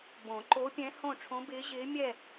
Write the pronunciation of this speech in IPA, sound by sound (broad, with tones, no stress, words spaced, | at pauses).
bõ˨˩˦ǃo˧˥pʲɛ̃˧˥ hõ˥˨ ʈ͡ʂʰõ˧˥bɪː˧˥ ʑɪː˧˥mʲɛ˥˨